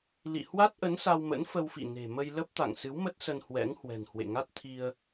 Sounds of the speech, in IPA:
lḭ˧˨ hwa˦˥t̚ʔə˨˦n sa˧wmə̰˧˥nfə˧wfḭ˧˨ ne̤˨˩mə˧jlə˦˥p̚t̪a̰˧˨ŋ sɨ˨˦wmə˦˥t̚sə˧n hwɛ̰˧˥ŋhwɛ̤˨˩nhwḛ˧˨ ŋa˦˥t̚t̪ʰi˧ə̯

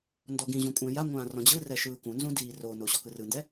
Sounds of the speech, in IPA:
ndɔɡĩʑũ kʷʼɛ̃jaŋʷãː rɔ̃d͡ʑɯrɛ ʃɯːkũnzũ diːrono ɕɔkɯrɯndɛ

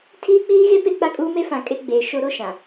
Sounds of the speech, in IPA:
tʰiː˦k͡piː˦ɣe˦ pe˦k͡pa˦kʼuː˦ me˦fã˨ kʼe˦ɡ͡beː˨ʃo˦ ɾo˦ʃã˨

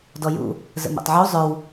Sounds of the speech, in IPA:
dɔjṵ | zə̰mɛ̰tˤʕu zˤœw

